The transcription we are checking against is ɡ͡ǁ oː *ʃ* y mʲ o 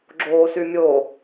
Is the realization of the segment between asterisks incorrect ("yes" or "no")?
yes